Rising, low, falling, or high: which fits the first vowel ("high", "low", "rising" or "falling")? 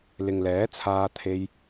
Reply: low